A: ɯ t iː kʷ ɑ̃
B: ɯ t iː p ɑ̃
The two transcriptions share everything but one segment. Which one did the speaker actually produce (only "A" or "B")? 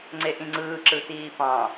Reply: B